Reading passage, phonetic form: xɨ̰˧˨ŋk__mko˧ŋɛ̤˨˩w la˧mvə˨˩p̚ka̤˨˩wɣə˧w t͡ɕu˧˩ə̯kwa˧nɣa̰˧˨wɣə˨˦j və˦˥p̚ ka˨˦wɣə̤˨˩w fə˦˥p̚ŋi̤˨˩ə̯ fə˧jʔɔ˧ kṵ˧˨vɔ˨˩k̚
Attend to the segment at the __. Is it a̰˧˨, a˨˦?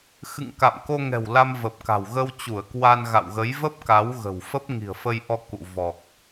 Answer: a̰˧˨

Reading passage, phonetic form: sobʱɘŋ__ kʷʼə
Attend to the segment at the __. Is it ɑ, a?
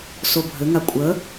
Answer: a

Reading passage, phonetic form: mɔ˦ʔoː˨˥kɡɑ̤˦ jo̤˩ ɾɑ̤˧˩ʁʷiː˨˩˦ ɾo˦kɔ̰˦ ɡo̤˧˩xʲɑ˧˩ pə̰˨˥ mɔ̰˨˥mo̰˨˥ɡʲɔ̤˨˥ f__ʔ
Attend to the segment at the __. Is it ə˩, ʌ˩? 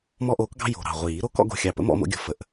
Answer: ə˩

